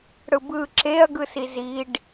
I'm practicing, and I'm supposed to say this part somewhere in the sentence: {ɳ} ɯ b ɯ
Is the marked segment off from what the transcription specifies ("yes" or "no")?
yes